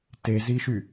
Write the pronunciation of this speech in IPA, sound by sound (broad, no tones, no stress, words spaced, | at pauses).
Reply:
teziʃy